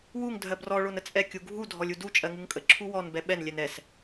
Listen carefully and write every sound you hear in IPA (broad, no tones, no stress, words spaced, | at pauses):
wuŋ dʱɜbrɔ ɭonət͡sʼɛ kʲuɡʱu dʱɔlʲudu t͡ʃʼɜŋuŋkʼə ǁʰuwɔn bɛɓɛn lʲɛnɛs